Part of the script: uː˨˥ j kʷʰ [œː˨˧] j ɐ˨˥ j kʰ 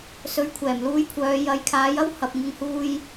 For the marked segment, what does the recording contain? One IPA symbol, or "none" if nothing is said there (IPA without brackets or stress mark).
œː˨˧